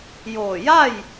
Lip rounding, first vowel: rounded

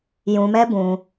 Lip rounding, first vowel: rounded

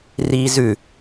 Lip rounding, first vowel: unrounded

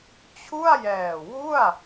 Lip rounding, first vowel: rounded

